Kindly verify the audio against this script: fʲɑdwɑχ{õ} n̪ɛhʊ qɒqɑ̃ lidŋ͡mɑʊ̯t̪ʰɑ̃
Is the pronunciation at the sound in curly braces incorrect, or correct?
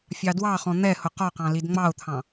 incorrect